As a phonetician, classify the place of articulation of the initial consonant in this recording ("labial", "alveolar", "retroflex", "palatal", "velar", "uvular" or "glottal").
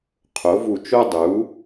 uvular